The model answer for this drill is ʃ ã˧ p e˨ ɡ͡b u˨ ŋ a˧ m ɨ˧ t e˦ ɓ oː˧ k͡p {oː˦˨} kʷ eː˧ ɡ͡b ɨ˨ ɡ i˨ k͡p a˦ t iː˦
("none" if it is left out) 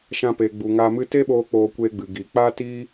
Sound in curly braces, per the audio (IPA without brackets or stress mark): oː˧